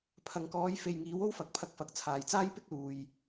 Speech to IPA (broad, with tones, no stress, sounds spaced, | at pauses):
pʰ ɐ˨ ŋ k ɔː˨˧ j f e˨ j ŋ iː˨˥ w o˥ w f ɐ˨ k̚ pʰ ɐ˧ k̚ f ɐ˨ k̚ t͡sʰ aː˨ j t͡s aː˥ j p ɪ˥ k̚ l uː˨ j